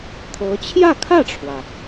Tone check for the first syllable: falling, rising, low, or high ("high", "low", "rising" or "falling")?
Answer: rising